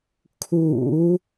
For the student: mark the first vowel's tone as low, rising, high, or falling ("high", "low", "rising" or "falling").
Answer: low